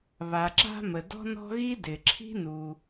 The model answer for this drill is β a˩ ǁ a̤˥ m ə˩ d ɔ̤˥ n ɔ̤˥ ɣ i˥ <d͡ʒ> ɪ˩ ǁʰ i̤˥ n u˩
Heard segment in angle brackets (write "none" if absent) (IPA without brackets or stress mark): d